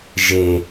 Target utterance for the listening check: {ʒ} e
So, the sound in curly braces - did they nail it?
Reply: yes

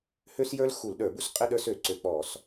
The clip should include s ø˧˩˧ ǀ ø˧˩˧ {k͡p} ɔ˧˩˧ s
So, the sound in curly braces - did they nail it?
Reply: yes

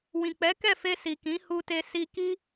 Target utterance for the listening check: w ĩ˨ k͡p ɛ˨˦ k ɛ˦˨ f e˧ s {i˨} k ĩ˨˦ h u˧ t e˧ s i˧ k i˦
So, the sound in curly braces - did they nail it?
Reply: yes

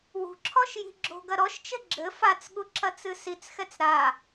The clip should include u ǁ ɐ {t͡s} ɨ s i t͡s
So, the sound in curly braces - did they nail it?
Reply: yes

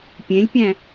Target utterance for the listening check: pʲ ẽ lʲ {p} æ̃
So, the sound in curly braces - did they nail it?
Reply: no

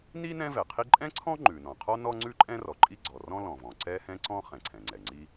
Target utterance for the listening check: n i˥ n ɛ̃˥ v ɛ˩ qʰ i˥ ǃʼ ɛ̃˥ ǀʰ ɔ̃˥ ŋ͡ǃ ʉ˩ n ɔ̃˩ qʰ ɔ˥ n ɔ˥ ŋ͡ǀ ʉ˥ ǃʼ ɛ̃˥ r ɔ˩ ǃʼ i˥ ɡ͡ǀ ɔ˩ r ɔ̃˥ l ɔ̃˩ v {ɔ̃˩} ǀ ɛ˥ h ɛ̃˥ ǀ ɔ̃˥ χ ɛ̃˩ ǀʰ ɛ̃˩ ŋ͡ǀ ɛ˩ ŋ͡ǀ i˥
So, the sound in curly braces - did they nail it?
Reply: yes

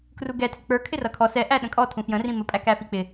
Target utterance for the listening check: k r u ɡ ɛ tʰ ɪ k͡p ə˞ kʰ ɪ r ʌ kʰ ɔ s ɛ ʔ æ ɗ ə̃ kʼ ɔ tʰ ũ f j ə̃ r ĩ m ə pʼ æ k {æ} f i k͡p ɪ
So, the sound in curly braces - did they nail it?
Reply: yes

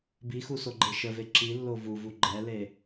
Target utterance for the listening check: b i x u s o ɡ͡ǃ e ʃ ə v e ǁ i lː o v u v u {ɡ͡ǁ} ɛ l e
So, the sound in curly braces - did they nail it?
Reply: no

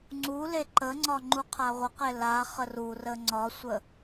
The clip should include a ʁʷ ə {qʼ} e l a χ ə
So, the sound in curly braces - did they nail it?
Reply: no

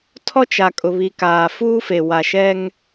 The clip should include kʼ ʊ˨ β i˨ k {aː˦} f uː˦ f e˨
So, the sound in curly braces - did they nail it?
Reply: no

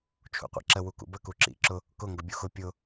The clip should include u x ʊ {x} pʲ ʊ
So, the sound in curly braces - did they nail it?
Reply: no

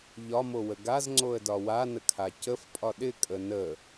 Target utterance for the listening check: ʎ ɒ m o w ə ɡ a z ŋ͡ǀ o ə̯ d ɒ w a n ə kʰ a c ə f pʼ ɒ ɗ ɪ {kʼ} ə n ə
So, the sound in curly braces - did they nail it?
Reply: yes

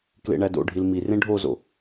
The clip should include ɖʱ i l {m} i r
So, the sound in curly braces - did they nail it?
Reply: yes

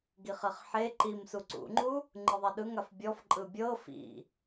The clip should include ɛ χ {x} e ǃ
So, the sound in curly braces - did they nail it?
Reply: no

